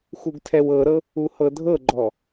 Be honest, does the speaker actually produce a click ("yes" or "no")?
yes